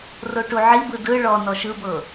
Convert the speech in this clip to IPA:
roʈuʕibɯ dɯ ɭɔ nɔʃɯbɤ

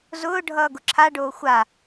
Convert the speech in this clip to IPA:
zʊː ɖʱʌːɡʊǁʰaɖoː xʷa

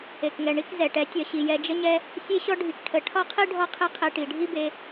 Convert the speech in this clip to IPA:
e˨kŋɛ˨ ɳi˦k zɛ˨ʈɛ˨˦ tʲɒ˨ɕi˨ jɛ˧d͡ʒə˦ɲɛ˦ | sʲe˦ɕɔ˦ ɖʱi˧kʈʰə˧ ʈʰɒ˦qʰi˦ ɖʱɔ˦qʰe˦qʰe˧ ʈi˨ɖʱi˦be˧

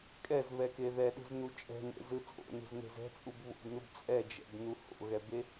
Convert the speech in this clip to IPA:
kʼɛzβɛke ðɛɗṳznu t͡ʃʼɛ̤nḛzɯ t͡sʼo̰nṳzne̤z ɛ̤t͡sʼub βo̰bnɯb t͡sʼɛd͡ʒɛ̰bnu ho̰ɣɛbe

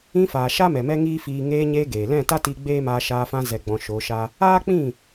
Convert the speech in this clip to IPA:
ĩ˧ faː˨ʃa˦mɛ˨ mɛ˦ŋiː˦fiː˧ ŋeː˧ɲeː˧ ɡeː˨ lɛ̃˦˨ta˦tiː˧ ɡ͡beː˦maː˧ ʃaː˧fã˧ zɛ˨ɡ͡bɔ̃˨ ʃo˨˦ʃa˦ | aː˦k͡pĩ˦˨

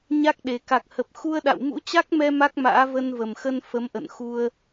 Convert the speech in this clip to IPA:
ɲa˦˥k̚ɗe˨˩ ka˨˩k̚hə˨˩p̚xu˧ə̯ɗa̰˧˨w mṵ˧˥t͡ɕa˦˥k̚mɛ˧ ma˦˥k̚ma̰ː˧˥ və˧nvə˨˩mxə˧n fə˨˦mʔə̰˧˨nxu˧ə̯

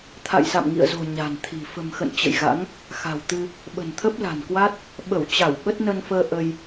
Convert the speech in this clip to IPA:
t̪ʰa̰˧˨jsa̰˧˨mŋḭ˧˨ə̯zo̤˨˩ ɲa̤˨˩nt̪ʰi̤˨˩ fə̤˨˩mxə̰˧˨n t͡ɕə̰˧˨jɣa̰˧˥ŋ | xa̤˨˩wt̪ɨ˧ | ɓə̤˨˩nt̪ʰə˦˥p̚la̤˨˩nkwa˦˥t̚ | ɓə˧˩wt͡ɕa˧˩w ɓə˦˥t̚nə˧nfəː˧ ʔə˧j

